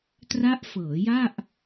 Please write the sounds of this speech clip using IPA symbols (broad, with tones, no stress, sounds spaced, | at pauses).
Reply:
t r a˦˥ ʔ f ɤː˩˦ j a˥˩ ʔ